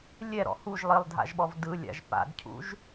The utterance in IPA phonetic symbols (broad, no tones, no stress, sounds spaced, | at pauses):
lʲ ɛ ɾ ɔ̰ h u ʒ lˠ i lˠ dʱ a̰ ʒ ɓ ɔ v d ɯ lʲ a̰ ʒ p a̰ d cʰ ṵ ʒ